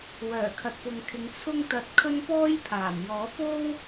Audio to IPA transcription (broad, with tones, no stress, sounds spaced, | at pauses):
w œː˨˩ kʰ ɐ˨ t̚ p ʊ˨ ŋ kʰ ɪ˨˧ ŋ t͡sʰ ʊ˥ ŋ t̪ ɐ˧ t̚ kʰ ɵ˥ n p ɔː˥ j pʰ aː˨˩ m j ɔː˨˥ p o˥ w